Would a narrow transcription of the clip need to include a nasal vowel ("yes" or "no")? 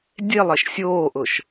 no